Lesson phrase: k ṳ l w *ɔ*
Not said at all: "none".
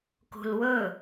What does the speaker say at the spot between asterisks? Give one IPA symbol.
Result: ɵ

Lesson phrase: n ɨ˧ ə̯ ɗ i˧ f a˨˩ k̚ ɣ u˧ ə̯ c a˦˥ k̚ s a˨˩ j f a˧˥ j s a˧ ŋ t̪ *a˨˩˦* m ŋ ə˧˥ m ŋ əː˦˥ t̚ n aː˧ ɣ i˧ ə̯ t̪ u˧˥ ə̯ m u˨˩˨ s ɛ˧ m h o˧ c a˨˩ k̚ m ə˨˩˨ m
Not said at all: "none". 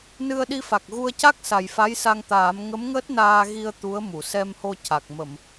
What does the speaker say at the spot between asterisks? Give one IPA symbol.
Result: aː˨˩˦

